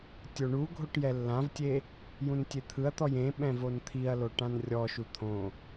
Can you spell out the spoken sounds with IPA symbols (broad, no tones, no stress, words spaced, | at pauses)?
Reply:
tʲoɳuɡʱoʈ jɛlːãvtʲe | jũntʲet̪ʰɯɐ̯t̪ɔj ẽɓɛ̃ vont̪ʰiɐ̯lo ʈãnrʲɔʃu t̪ʰõ